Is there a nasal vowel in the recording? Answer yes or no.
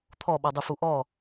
no